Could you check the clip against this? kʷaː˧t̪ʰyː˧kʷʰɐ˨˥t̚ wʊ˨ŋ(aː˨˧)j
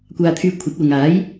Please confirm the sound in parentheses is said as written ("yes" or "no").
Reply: no